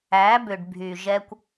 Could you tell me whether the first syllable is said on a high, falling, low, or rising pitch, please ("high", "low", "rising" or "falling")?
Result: rising